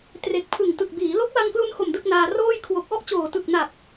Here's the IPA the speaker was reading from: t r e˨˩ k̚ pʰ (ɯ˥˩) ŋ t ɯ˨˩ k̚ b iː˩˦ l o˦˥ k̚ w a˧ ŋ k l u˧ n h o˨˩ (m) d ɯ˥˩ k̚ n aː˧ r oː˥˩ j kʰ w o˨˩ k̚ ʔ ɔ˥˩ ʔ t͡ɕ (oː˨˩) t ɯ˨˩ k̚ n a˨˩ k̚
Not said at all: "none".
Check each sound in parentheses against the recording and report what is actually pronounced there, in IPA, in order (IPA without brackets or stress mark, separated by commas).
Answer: ɯ˨˩, m, oː˨˩